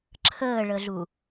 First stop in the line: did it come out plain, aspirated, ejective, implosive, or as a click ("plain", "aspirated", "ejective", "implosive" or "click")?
click